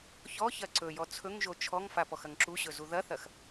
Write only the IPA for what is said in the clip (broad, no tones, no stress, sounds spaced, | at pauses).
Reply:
ç ɔ ç ɐ ǀ ɵ j ɔ t͡sʰ ɵ ŋ ʒ o t͡ʃʰ ɔ ŋ f a p ɔ x ɐ ŋ ǁ u ɕ ɵ z u ð ɐ θ ɐ x